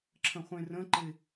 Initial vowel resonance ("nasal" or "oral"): nasal